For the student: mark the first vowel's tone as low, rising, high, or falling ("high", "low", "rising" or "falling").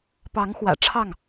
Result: rising